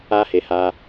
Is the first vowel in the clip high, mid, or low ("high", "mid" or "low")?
low